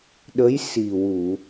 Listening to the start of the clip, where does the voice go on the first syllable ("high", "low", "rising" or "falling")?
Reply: rising